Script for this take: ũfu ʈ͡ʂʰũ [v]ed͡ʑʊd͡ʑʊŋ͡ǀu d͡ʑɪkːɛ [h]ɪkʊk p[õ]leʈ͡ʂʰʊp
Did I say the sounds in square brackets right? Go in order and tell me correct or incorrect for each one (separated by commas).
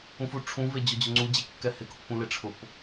correct, correct, incorrect